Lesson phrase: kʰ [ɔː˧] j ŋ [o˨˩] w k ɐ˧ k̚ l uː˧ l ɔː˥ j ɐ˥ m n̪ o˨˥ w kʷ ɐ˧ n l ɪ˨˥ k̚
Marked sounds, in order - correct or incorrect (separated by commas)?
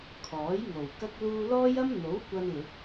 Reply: incorrect, correct